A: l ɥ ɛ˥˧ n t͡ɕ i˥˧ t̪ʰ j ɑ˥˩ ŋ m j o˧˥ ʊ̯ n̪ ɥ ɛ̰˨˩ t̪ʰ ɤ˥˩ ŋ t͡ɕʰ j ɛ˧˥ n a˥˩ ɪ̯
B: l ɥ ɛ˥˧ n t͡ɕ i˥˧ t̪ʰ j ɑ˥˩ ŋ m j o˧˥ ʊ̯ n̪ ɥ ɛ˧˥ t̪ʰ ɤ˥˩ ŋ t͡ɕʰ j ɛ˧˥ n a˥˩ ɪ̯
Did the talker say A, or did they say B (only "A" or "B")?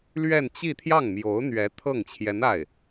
B